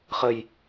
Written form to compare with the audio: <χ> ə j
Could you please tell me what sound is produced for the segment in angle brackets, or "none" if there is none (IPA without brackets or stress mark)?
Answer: χ